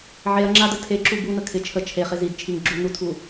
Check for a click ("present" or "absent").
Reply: present